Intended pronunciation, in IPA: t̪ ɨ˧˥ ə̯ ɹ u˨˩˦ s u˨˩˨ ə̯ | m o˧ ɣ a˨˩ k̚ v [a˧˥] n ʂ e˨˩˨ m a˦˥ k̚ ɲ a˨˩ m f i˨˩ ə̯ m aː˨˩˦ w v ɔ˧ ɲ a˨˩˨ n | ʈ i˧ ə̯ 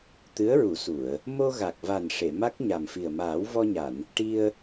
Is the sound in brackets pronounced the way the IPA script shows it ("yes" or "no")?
no